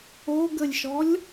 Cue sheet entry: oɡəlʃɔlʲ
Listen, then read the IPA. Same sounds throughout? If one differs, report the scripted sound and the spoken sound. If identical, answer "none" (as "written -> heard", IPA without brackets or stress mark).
l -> lʲ